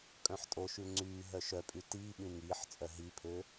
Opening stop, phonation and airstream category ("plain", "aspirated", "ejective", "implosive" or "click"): ejective